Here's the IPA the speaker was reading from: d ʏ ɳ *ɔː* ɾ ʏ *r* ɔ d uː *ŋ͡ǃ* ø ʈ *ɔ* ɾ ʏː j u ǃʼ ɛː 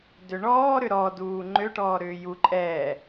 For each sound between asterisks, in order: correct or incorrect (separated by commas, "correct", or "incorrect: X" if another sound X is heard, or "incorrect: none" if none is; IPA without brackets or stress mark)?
correct, incorrect: ɾ, correct, incorrect: ɔː